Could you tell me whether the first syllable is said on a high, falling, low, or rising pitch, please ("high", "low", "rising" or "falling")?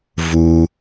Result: low